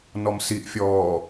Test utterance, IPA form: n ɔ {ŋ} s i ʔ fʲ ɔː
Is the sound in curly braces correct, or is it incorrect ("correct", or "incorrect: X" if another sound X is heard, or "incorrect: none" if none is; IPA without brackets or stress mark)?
incorrect: m